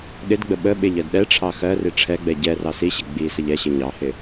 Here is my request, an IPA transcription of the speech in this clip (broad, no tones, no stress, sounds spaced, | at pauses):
ɗ ɪ d ɡ͡b ə ɓ ə ɓ ɪ ʎ ɜ d ɗ ɛ ʈ͡ʂʰ ɑ x ɜ r i ʈ͡ʂʰ ɛ ɡ͡b ɛ ɟ ɛ r ɑ s i ɕ ɪ ɡ͡b i s ə ʎ ɛ ɕ ɪ ɲ ɑ h ɪ